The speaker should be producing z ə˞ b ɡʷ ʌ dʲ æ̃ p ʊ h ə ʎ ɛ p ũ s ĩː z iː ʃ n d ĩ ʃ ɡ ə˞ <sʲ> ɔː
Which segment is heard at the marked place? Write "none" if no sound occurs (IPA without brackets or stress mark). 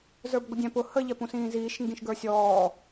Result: sʲ